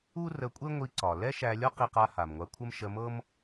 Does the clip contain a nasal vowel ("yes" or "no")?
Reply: no